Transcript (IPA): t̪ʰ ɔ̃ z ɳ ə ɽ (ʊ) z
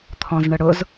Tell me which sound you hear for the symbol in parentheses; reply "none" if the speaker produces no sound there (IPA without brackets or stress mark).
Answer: ʊ